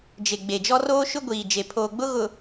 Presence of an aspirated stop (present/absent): present